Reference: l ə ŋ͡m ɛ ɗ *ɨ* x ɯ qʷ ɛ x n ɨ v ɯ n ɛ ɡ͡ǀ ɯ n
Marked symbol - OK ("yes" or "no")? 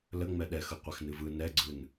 no